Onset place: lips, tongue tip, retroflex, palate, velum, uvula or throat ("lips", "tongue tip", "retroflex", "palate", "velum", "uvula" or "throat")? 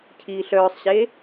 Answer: palate